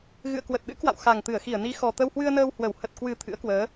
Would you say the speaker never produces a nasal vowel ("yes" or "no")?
yes